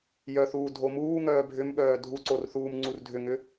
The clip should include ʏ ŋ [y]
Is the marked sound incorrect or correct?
incorrect